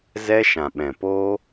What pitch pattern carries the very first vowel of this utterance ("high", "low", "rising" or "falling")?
high